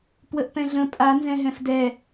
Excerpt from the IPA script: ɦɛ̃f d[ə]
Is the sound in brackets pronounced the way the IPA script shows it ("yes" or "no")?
no